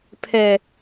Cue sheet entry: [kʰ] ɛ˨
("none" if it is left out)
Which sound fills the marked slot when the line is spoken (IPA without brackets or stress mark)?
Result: pʰ